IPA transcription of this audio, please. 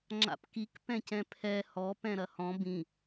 ŋ͡ǁ a̰ p k i k p ɛ̃ c ɛ̃ pʰ ɛ h ɔ p ɛ̃ ɾ ɐ h ɔ̃ b ĩ

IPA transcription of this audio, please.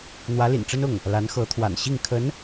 n̪ w ä˧˥ l ḭ˨˩ n ʈ͡ʂ ə˥ n ʊ˥˩ ŋ | l a˧˥ n x ɤ˧˥ t̪ʰ w a̰˨˩ n ɕ i˥˩ ŋ kʰ ə˧˥ n

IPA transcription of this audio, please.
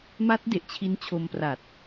m a˦˥ t̚ d e˨˩ ʔ t͡ɕʰ i˦˥ n t͡ɕʰ o˧ m p r a˨˩ t̚

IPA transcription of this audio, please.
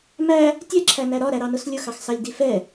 m æ | tʲ ɛ ǁʰ æ n æ ɾ ɒ ɾ æ ɾ ɑ n ʊ s lʲ ʊ x ɑ x s ɑ lʲ d i f ɛ

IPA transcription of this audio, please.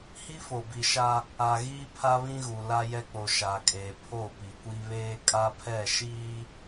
h i˦ f o˨ b i˨ ʃ a˦ | a˨ ɣ iː˦ pʰ a˦ β ĩ˦ ɣ u˨ l a˦ j ɛ˦ k͡p o˨ ʃ a˨ kʼ e˨ pʰ o˦˨ p i˨ kʷ i˦ β eː˦ kʼ a˦ pʰ ɛ˦˨ ʃ iː˦

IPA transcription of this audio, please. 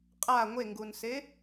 qʼ a ŋʷ e ŋ ɡ u n s e

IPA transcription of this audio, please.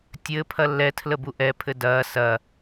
tʲ ɘ pʰ ɐ lː ɛ tʰ l ə b u ʔ ɛ pʰ ɘ d ɐː s ɐ

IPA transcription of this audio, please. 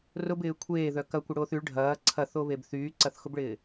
r ʊ b ɪː kʷʰ eː ð œ k ɐ kʷ ɪ ɽ oː θ y ɭ ɖʱ ɐː ǀʰ ɐ θ o β e b θ yː ǀ ɐ θ x ʊ b ɭ ɪː

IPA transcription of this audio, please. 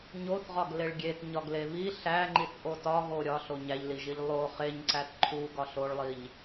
ɲ o θ ʁ ɒ ɡ l e ɭ ɡʲ e t ɲ ɒ ɡ l e β i ɬ æ ŋ͡ǃ i θ ʔ o t ɒ ɣ o ɾʲ ɒ ɬ o ɲ æ ʎ l i ʒ i ʎ lˠ o χ e ɲ ǀ æ t ǃʰ u ɡ ɒ ɬ o ɭ lˠ i ʎ

